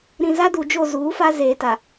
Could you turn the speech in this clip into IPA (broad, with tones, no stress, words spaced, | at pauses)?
ɾĩ˨ za˦du˨d͡ʒo˦˨ zuː˨˦fa˦ zeː˨ta˨